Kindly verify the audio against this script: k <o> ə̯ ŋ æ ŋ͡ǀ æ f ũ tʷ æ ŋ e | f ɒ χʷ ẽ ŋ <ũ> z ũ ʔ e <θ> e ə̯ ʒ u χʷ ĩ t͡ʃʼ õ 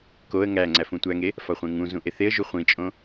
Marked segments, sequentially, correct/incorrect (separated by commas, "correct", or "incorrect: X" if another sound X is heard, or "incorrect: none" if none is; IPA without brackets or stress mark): correct, correct, correct